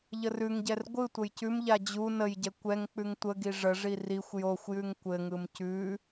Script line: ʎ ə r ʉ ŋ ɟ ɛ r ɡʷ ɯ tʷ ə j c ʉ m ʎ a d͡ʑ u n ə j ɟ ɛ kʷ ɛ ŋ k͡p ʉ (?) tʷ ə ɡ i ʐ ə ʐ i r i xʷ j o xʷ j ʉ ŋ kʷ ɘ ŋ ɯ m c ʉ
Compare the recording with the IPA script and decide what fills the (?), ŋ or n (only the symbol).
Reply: ŋ